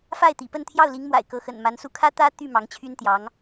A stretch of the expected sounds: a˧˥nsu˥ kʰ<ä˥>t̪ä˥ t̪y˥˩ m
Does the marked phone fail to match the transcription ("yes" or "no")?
no